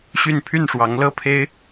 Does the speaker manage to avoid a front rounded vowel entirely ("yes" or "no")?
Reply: no